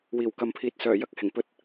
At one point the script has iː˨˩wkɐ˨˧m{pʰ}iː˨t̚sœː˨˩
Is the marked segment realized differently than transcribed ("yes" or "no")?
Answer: no